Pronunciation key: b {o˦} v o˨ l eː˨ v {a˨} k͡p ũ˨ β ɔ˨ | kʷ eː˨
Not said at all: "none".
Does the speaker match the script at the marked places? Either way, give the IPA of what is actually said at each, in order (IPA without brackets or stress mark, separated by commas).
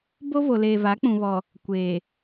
o˦, a˨˦